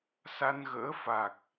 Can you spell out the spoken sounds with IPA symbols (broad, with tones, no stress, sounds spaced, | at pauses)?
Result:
s a˧ n ɣ ə̰ː˧˥ f a˨˩ k̚